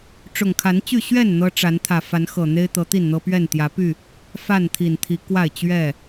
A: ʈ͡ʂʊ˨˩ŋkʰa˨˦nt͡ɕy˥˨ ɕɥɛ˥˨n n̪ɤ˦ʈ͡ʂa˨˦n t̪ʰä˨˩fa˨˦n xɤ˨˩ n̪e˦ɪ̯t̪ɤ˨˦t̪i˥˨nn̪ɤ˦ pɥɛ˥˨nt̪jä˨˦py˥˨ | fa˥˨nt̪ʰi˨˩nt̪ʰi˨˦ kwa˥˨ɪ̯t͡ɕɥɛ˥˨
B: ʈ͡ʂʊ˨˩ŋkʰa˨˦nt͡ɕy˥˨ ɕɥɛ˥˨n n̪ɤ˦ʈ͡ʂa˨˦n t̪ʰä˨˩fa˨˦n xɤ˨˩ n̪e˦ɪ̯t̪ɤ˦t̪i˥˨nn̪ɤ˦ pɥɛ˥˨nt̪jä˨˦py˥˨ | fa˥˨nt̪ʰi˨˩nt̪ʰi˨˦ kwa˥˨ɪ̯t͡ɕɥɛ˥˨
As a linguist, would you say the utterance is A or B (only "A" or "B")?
A